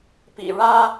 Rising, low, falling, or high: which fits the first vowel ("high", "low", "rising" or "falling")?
low